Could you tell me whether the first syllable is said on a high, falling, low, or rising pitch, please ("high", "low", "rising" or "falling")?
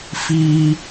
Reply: high